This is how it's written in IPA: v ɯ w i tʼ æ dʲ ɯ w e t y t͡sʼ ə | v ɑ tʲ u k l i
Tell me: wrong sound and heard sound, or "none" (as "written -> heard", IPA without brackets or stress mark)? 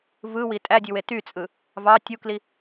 ə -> ɯ